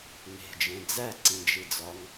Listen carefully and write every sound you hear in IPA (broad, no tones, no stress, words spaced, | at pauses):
ne̤d͡ʒẽ d͡zæǀĩd͡ʒid͡zɒŋ